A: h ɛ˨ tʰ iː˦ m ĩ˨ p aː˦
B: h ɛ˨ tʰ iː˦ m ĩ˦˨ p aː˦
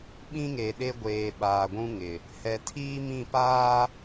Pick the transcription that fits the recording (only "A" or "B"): B